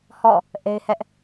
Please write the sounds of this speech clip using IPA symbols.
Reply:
h ɔ̰˦˨ | ʔ e˦ ɪ̯ h ɛ˦ ʔ

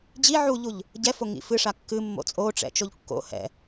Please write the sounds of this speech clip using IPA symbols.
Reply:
d͡ʑ i ʕ u ʎ u ʎ | ɟ ɛ f o ŋ ḭ f ɨ ʂ a kː ɨ mː o̰ t͡sʼ o ʈ͡ʂ ɛ̰ t͡ʃ o ʎ kː o̰ h ɛ̰

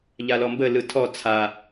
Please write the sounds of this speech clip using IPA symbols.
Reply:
ʎ a l ɔ m b ə l ɯ tʰ ɔ t͡sʰ a

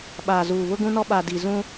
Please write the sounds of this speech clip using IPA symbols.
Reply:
ɓ aː˨ z uː˨ β ʊ˦ ɡ ũ˦ n ɔ˦ ɓ a˨ d i˨ z ũ˦

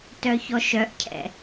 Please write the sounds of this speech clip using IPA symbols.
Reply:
t œ ç ɔ ʃ œ ʔ cʰ ɛ̰

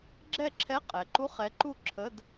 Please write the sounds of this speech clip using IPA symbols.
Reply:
ɡ͡ǁ ɛ˥˨ ǁʰ ɛ˧˥˧ qʼ ɛ˩˧ ǃ u˧˥˧ χ ɛ˨˥ ǃ u˥˨ ǁʰ ə˧˥˧ d

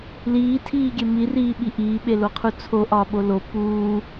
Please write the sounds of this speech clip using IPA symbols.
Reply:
l iː tʰ iː ɡʲ e m i r iː ɓ i ʔ iː ɓ e l o qʰ u t͡sʰ o ʔ ɒː ɓ o l o p uː

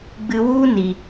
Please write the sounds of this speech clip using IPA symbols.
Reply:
ɡ͡b ɨ˧ w u˦ n i˨

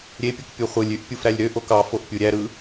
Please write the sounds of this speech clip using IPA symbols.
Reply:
ɾʲ e pʲ ɯ k pʲ u χʷ ɯ lʲ y ʔ pʲ u f ɾ æ lʲ ɾ ø ʔ o k ɑ f o ʔ pʲ u ɾʲ æ ɾ ɯ

